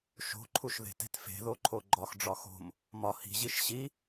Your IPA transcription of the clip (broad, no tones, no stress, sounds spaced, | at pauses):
ʃ o̤ ǃʰ u ʃ ð e̤ t e̤ t f e̤ ð o ǃʰ o ɡ͡ǃ ɒ x ɖ͡ʐ ɒ x o̤ m | m ɒ h i̤ ʑ i ʃ ɕ i